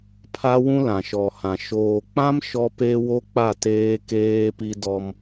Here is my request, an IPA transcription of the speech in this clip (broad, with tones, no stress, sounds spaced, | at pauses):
pʰ a˦ w ũ˦ l ã˨ ʃ ɔ˨ h ã˨ ʃ oː˨ k͡p ã˦ m ʃ ɔ˦ p e˦ w o˦ k͡p a˦˨ t eː˦ k eː˦ p i˦ d ɔ˦ m